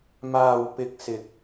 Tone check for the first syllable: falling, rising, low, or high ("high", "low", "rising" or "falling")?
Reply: low